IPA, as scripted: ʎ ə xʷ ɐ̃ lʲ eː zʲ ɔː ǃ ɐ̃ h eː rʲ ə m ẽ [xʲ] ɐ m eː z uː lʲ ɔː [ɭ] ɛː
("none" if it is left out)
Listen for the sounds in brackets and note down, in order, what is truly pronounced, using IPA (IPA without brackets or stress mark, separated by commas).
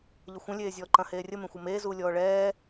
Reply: xʷ, ɭ